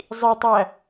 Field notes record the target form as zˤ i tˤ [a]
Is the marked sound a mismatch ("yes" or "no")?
yes